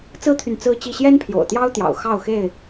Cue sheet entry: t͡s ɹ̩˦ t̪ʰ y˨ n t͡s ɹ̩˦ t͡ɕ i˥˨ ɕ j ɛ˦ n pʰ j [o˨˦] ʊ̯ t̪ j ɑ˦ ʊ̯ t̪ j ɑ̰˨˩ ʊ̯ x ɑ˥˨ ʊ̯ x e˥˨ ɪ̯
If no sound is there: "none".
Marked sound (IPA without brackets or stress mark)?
o̰˨˩